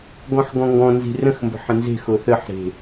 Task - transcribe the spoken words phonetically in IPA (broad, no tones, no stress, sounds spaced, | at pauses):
ɡ ɔ̃ ħ ɡ ɔ̃ ŋ ɡ ɔ̃ n z i̤ r ə̃ x m b ə̤ ħ ə̃ n z e̤ x o θ ə ħ ɾ e̤